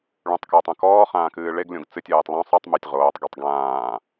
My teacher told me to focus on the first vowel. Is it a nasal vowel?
yes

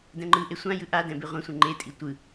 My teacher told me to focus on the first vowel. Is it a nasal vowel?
yes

